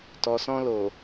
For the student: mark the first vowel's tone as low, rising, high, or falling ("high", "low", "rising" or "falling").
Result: low